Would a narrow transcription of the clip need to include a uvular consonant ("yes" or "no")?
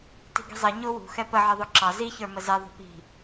no